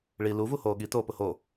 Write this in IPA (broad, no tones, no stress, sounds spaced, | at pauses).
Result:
ɭ i l u v u h oː ɠ i t oː p ʊ h o